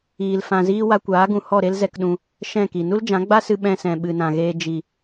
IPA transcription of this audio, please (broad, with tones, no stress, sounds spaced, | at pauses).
iː˧ l f ã˧ z iː˦ w a˧ kʷ aː˨˦ ɡ ũ˨ h ɔ˦˨ ɾ e˦ l z ɛ˧ k ɗ ũ˧ | ʃ ɛ̃˦˨ k i˨ n u˦ l d͡ʒ ã˨˦ ɡ͡b a˦ s ɨ˧ ɓ ɛ̃˧ s ɛ̃˨ ɓ ɨ˨ n ã˨ ɣ eː˧ d͡ʒ i˨